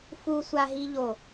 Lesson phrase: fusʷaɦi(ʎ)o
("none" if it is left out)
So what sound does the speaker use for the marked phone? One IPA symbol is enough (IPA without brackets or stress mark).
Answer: ʎ